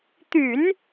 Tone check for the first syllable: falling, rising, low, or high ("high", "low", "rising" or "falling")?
low